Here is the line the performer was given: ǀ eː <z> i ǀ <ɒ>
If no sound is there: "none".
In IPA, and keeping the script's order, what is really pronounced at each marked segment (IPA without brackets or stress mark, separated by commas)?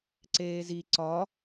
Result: z, ɒ